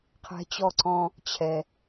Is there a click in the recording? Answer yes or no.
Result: yes